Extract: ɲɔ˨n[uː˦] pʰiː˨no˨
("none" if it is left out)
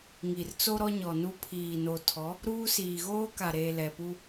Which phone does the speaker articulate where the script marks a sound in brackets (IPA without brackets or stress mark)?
u˦